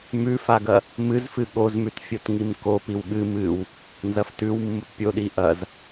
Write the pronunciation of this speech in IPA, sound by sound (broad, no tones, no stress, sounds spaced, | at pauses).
m ʉ f a ɡ ɐ | m ɨ z f ɨ ɠ o z m ʉ t fʲ o t ŋ i m k o p i w ɠ ɨ m ɨ w | n z ɐ f t ʉ w mː u t pʲ o ɗ i ʔ ɐ z